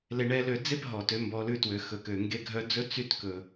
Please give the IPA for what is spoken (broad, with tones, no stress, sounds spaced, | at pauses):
l e˧ ɳ ɛ˧˥ l ø˧ d͡z e˥ p ɦ ɔ˩ t ø˩˧ m b ɔ˩˧ l ʉ˧ t w ø˩ x ɵ˩ k ø˩ ŋ ɡ e˧ ɡʱ œ˧˥ d͡z ɵ˥ t͡s y˧ t k ɵ˩